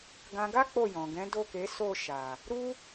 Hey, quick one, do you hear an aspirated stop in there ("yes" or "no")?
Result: no